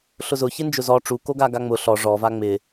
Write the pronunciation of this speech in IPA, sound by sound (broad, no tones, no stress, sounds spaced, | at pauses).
ɬ ʊ z ʊ ç ɪ n d͡ʒ ʊ z ɔ ʈ͡ʂ u k o ɡ a ɡ a ŋ͡m ʊ ɬ ɔ ʐ ɔ v a ŋ͡m ɪ